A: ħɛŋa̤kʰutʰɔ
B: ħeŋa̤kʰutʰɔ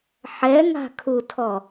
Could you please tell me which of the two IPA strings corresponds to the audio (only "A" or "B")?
A